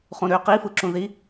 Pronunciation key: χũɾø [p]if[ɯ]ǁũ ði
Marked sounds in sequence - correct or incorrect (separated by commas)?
incorrect, correct